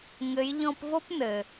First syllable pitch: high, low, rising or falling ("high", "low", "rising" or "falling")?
rising